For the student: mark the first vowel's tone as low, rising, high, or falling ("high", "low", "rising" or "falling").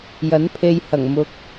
rising